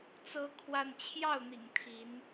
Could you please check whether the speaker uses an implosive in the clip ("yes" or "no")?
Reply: no